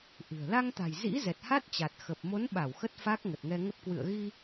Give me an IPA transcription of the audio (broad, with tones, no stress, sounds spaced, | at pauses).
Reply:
ʔ ɨ̤˨˩ ə̯ l a˧ ŋ t̪ a̤˨˩ j z ḭ˧˥ z ɛ˨˩ t̚ h a˦˥ t̚ t͡ɕ a˨˩ t̚ x ə˨˩ p̚ m o˨˦ n ɓ a˧˩ w x ə˦˥ t̚ f a˦˥ k̚ ŋ ə˨˩ t̚ ŋ ɛ˧ ŋ ə˦˥ p̚ k w ɨ̰˧˨ ə̯ ɣ i˧